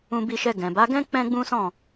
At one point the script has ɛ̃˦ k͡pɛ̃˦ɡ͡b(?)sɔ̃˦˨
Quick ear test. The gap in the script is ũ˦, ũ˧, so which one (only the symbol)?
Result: ũ˦